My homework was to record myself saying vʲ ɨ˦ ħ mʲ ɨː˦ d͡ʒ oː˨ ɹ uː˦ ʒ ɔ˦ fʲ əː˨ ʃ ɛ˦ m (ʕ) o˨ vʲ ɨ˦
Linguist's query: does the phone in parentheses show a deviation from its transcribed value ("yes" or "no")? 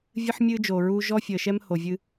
yes